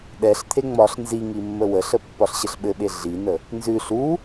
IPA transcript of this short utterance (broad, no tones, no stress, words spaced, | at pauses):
ɗɛɬt̪ʰe ŋ͡mɒɬ nziŋi mːəwəɬə pːɒɬɕəɬɓɘɓe ɮinə | nzʉ ɬu